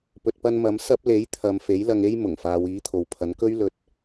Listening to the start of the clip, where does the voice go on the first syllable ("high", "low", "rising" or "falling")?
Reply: low